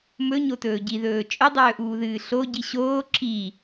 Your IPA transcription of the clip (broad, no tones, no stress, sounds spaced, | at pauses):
m ɵ ɲ o t ɵː ɟ i ð ɵː t͡ʃʼ ɵ dˤ ɵː ʔ uː ð ɨː ɬ o ɟ i ɕ oː ǁ i